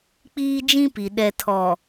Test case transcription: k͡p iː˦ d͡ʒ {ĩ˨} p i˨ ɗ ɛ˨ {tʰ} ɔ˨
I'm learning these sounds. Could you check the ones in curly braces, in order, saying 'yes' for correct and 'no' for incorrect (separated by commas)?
no, yes